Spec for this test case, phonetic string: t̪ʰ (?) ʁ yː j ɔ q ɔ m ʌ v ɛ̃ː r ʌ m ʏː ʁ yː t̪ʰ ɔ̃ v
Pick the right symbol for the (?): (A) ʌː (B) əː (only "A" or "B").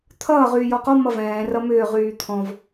A